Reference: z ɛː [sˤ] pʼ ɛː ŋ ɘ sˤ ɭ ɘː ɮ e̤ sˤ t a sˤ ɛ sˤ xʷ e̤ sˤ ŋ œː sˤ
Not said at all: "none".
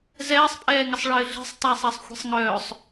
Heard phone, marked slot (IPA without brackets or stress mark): sˤ